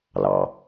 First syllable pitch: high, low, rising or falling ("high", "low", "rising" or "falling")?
low